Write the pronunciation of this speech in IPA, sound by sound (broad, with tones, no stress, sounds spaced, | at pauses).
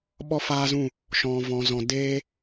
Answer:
ɓ ɔ˦ f aː˦ z ũ˦˨ | ʃ ɔ̃˨ v ɔ̃˨ z ɔ̃˨ d eː˦